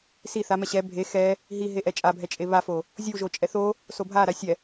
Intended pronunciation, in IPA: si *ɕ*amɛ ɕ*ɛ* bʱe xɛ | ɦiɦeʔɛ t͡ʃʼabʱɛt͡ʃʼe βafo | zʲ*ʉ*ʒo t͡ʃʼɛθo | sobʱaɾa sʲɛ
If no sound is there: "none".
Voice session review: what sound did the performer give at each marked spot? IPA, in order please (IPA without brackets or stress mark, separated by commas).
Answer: θ, ɛ, u